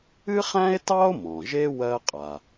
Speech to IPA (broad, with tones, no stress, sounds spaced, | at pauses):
ɨ˥ χ æ̃˥ e̯ t ɑ˥ o̯ m ɔ̃˩ ʒ e˥ w ɜ˥ qʼ a˩